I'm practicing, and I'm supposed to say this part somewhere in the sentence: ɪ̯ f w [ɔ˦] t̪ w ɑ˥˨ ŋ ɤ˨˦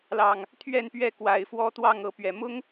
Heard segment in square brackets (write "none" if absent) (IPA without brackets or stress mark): ɔ˦